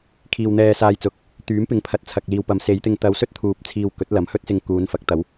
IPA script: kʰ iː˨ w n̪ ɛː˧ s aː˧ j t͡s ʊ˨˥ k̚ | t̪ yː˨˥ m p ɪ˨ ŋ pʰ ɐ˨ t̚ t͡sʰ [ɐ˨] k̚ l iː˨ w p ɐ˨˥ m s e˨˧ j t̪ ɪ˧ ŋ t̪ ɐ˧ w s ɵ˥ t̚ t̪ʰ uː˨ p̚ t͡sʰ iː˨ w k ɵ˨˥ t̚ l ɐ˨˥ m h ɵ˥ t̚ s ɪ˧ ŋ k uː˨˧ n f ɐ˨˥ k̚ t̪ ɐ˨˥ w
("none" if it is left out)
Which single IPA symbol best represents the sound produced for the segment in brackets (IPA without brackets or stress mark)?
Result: ɐ˨